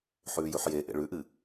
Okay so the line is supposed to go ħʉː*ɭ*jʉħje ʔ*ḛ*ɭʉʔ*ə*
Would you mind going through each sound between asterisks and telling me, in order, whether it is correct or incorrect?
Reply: incorrect: none, correct, incorrect: ɨ

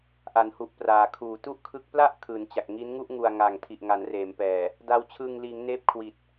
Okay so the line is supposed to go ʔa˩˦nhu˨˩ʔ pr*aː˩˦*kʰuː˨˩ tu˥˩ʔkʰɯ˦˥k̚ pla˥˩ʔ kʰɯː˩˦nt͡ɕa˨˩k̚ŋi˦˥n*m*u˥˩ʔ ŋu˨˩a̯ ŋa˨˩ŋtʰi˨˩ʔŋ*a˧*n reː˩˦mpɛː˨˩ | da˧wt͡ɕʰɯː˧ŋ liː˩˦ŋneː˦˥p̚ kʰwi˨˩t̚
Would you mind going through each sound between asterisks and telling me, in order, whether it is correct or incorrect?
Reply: incorrect: aː˨˩, incorrect: ŋ, incorrect: a˩˦

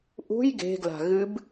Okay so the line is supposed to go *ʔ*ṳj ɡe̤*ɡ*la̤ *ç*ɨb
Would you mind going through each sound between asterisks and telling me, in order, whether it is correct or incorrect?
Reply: correct, correct, incorrect: ɣ

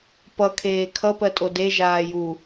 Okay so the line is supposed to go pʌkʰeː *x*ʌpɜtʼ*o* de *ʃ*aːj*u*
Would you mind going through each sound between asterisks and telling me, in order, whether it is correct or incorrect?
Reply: incorrect: kʰ, correct, incorrect: ʒ, correct

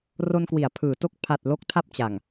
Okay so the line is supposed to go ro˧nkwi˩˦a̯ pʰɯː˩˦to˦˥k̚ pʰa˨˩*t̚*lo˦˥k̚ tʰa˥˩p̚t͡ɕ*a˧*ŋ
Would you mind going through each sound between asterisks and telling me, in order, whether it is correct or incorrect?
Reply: correct, incorrect: a˨˩

